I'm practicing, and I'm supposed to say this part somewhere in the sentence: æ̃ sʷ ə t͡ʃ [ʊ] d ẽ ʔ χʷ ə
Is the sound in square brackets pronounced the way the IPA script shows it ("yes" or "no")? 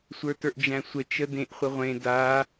no